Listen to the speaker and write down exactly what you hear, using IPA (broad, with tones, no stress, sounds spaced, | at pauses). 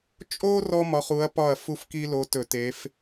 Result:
t͡ʃʼ o˥ r ɔ˥ m ɒ˨˥ χ u˨˥ ɐ̯ p ɒ˥˩ ɐ̯ f u˥˩ f k i˥ l o˨˥ t ɵ˧˩˧ t e˨˥ f